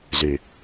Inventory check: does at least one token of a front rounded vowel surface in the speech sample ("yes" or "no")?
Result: yes